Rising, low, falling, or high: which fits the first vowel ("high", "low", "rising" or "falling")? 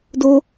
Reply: high